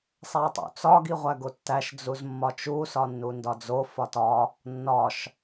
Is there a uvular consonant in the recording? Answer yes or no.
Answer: yes